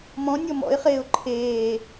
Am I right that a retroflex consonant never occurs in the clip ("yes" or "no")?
yes